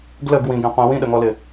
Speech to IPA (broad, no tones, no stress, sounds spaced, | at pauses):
ɡ l ə ɡ w ĩ ɡ ẽ qʷ ĩ w ĩ ɗ ə ŋ ɔ l ɪ